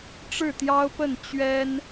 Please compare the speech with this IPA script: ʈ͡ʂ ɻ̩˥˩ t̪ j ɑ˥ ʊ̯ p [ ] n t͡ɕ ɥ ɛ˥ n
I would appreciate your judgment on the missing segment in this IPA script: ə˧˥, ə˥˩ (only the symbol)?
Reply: ə˥˩